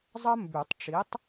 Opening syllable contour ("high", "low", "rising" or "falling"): high